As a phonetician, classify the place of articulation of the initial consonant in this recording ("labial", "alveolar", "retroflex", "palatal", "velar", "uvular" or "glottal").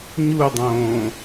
palatal